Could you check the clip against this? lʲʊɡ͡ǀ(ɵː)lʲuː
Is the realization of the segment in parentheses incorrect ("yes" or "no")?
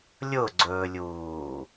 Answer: no